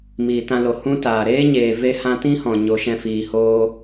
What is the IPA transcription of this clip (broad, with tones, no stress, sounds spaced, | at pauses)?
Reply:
m iː˨ t ã˧ l o˨ h ũ˦ t aː˨ ɾ eː˦ ɲ eː˨ v e˧ h ã˧ t ĩ˦ h ɔ̃˨ ɲ o˨˦ ʃ ɛ̃˧ f iː˨ h oː˦